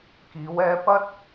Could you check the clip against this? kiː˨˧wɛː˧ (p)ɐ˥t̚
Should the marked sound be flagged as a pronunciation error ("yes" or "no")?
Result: no